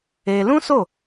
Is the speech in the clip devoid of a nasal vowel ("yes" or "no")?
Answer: no